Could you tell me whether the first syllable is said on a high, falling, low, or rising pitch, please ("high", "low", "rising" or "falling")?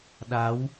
rising